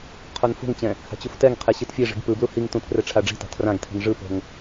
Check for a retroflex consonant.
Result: present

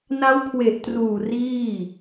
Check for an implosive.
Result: absent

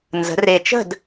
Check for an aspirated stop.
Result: absent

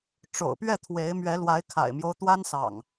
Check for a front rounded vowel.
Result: absent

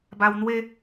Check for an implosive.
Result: absent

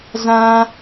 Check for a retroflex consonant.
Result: absent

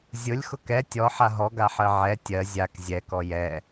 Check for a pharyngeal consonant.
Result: present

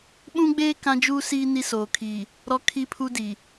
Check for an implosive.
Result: present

